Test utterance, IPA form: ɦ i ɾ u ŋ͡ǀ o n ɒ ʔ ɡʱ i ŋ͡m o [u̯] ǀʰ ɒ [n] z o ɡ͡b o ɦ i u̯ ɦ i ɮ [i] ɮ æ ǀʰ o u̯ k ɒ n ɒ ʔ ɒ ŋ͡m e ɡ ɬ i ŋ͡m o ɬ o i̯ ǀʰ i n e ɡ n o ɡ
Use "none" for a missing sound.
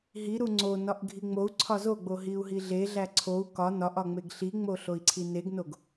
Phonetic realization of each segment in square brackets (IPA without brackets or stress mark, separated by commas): u̯, none, e